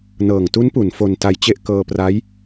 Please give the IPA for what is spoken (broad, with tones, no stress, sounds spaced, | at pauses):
n ɤː˨˩ ŋ t u˦˥ n p u˩˦ n f o˧ n t a˧ j t͡ɕ e˥˩ ʔ k ɤː˧ p r a˦˥ j